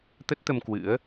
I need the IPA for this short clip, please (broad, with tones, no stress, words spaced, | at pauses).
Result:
t̪ə˦˥t̚t̪ə˧m kwɨ̰˧˥ə̯